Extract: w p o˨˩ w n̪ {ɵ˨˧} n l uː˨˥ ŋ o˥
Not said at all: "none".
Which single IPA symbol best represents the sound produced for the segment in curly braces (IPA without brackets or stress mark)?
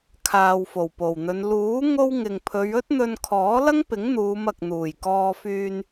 ɵ˨˧